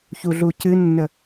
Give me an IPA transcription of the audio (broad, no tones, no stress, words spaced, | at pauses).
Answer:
çuɮucɨnːə